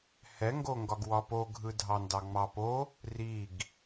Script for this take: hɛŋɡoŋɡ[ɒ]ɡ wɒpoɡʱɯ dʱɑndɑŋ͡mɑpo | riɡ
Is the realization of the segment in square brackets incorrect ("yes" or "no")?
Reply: no